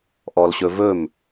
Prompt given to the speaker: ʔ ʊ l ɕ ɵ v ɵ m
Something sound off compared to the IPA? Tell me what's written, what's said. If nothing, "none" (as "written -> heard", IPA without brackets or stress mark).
ʊ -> ɔ